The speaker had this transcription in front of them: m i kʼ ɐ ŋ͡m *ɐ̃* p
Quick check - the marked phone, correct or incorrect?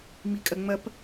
incorrect